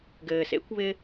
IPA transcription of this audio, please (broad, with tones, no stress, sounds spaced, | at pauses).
ɡ ɘː˩ s ḛ˥ kʷ β ɪ˧